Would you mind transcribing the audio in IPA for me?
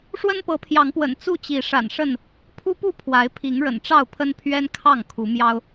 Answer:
ʂ w ə˦ n p ɤ˨˦ pʰ j ɑ˨˦ ŋ p w ə̰˨˩ n t͡s u˥˨ t͡ɕ i˨˦ ʂ a̰˨˩ n ʂ ə˥˨ n | pʰ u˦ p u˥˨ pʰ w a˨˦ ɪ̯ pʰ i˨˦ ŋ ɻ ə̰˨˩ n ʈ͡ʂ ɑ˥˨ ʊ̯ pʰ ə˦ n pʰ ɥ ɛ˦ n kʰ ɑ˥˨ ŋ kʰ u˨˦ m j ɑ˦ ʊ̯

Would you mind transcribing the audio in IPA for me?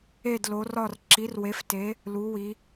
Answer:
e˥˧ d l o˨˦ r ɒ˥˧ r ǁ i˨˦ r w e˨˦ f t e˨˦ | l u˨˦ w i˨˦

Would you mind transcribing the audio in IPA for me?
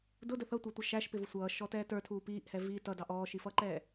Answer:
d ʊ d ə θ ʌ tʷ æ tʷ ɑ ʃ æ ʃ p ɪ v ʊ sʷ ʌː ʃ ɔ t ɛː t ə˞ tʰ uː p iː ʔ h ɛ v i t ʌ d ɑ ʔ ɔː ʃ i f ʌː ǃ ɛː

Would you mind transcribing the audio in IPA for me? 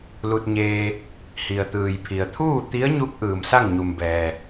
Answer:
l u˧ t̚ ɲ eː˧ | h i˩ ə̯ t̪ ɯː˩ j pʰ i˩ ə̯ t̪ʰ uː˥˨ t̪ i˧˥ ə̯ ɲ u˧˥ k̚ ʔ ɯː˩ m s a˥˨ ŋ ɲ u˩ m b ɛː˩

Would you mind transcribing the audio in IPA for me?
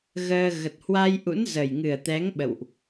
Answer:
ɣ əː˧ ɣ ə˨˩ t̚ h w a˧ j ʔ ṵ˧˥ n z ə˨˩ j ŋ ɨ˨˩ ə̯ t̪ ɛ˨˦ ŋ ɓ ə̰˧˨ w ʔ

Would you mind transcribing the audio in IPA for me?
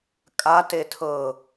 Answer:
kʼ a t e tʰ ɤ

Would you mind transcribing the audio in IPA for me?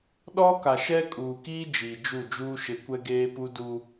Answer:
ɗ ɔ˦ k a˨ ʃ ɛ˦ kʼ uː˨ k iː˦ d͡ʒ iː˨ d͡ʒ u˦˨ d͡ʒ uː˦ ʃ ɪ˨ kʷ ɛ˦ ɡ eː˦ p u˦ d u˦

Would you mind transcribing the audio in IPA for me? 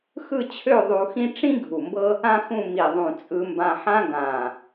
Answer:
x ɯ˥˧ t͡ɕʰ ø˥˧ ðˤ u˧ x ĩ˥ ʈ͡ʂ ĩ˥ ɡʱ u˧˩ m b ɤ˥ | ã˥ x ũ˥˧ m i˧˩ ðˤ ũ˧˩ t͡sʼ ɯ˧ m b ã˧ ħ ã˥ ɡ ã˧˩

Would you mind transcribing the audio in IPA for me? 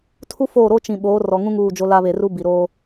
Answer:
tʰ u˦ f oː˦˨ ɾ o˦ t͡ʃ ĩ˨ ɓ oː˨˦ r ɔ˨ ŋ ũ˦ ŋ uː˦˨ d͡ʒ o˦ l a˦ β e˨ r u˦ b i˨ ɾ oː˦

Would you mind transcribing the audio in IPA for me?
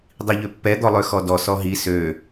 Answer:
dˤ i ʎ ø pː ɛ d̪ ɔ lˠ ø x ɔ d ɔ s ɔ ɦ i s ø

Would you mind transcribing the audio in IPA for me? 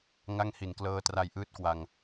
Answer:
ŋ a˥˩ ŋ h i˨˩ n k l ɤː˧ t r a˧ j ʔ ɯː˦˥ t̚ k w a˧ ŋ

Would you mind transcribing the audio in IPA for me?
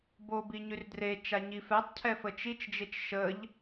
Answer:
b o b i ɲ y r d r e t͡ʃ a ɲ i f ɛ tˤ cʰ ɛ f ə t͡ʃ i t͡ʃ d͡ʒ e t͡ʃ ʃ ə ʎ

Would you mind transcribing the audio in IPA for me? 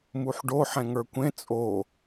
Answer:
m u ħ ɖ o ħ ɛ̃ ŋ ə˞ kʷ ẽ t͡sʼ o

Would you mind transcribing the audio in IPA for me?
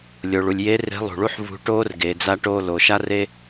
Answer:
lʲ o˩ ɭ u˩ lʲ j e˧˥ r e̤˧˥ lˠ ṳ˩ ɭ u˥ ħ v ṳ˧ ʈ oː˥ r ɡ e˩˧ d͡z a˥ ʈ oː˥ l o˩˧ ʃ a˥ r e˥

